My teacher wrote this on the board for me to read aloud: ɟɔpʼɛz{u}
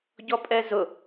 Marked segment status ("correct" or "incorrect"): incorrect